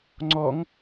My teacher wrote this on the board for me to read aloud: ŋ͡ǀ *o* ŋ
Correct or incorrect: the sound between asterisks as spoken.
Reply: incorrect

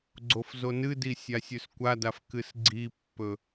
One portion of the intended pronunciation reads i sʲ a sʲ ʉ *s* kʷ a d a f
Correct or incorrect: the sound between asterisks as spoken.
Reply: correct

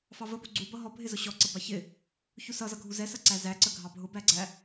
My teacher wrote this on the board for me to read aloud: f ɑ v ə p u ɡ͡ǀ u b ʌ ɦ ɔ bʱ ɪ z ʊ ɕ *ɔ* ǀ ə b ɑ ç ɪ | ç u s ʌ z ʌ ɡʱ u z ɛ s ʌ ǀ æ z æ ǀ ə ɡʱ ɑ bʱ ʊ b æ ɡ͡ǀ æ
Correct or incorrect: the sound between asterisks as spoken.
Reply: correct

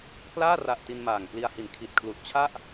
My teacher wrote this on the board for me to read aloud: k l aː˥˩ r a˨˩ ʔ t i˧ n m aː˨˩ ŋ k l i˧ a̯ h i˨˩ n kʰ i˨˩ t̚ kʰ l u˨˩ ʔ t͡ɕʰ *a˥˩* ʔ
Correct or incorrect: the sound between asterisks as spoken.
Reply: correct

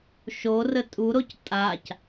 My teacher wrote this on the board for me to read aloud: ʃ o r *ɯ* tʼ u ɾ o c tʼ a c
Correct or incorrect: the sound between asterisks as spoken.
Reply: incorrect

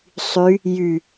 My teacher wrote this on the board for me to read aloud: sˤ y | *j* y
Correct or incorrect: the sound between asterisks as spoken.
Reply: correct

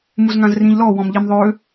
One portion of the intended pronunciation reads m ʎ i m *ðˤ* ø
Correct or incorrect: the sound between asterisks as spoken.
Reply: correct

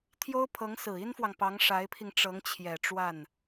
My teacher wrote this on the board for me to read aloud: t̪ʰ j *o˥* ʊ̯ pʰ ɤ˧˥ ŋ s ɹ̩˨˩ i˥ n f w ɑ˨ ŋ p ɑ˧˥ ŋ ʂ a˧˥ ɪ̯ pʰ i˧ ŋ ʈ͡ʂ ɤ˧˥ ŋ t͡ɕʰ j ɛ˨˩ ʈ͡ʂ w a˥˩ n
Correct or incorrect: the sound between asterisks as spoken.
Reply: correct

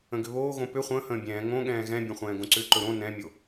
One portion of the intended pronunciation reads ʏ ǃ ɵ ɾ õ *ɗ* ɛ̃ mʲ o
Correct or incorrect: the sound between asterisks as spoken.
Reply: incorrect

